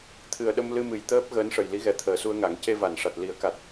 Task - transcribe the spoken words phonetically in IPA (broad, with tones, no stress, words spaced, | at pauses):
t̪ʰɨ˨˩ə̯ ɗə˧mlɨ˧mɨ˨˩j t̪əː˦˥p̚ ɣəː˧˥nʂə˨˩jli˧˥ɣɛ˨˩ t̪ʰəː˨˩˨su˧ə̯ŋa˨˩˦ŋ ce˧va˨˩˨nʂa˨˩t̚ li˨˩˦ə̯ka˨˩t̚